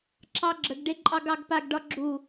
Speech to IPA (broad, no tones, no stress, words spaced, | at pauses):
ǁɑɡ͡ǁəɡɖe ǃʼɑɡɑɡpaɡɖɒ ɡ͡ǁu